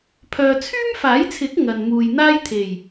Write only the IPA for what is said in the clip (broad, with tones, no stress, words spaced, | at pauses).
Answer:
pʰœː˨t͡sʰyː˥mfaː˨˥jt͡sʰɪ˨˥k̚ ŋɐ˨nmuː˨j n̪aː˥jt̪ʰe˨˩j